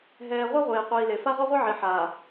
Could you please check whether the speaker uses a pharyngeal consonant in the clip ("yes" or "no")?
yes